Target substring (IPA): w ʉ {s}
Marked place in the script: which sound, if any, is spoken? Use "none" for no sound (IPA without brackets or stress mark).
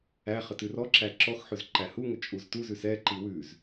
z